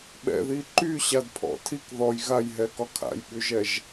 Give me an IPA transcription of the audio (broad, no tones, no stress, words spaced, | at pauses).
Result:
ɓɛ̰ði ǃyɕadpʰɔ̰ tʰik ðɔj ɣajɦɛkɒ kʰa̰jɓyʒɛʒ